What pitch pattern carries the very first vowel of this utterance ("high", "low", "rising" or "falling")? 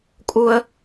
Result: high